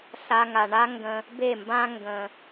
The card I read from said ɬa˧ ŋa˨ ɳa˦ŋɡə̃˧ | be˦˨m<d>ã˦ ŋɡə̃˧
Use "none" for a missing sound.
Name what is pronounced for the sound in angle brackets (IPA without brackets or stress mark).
b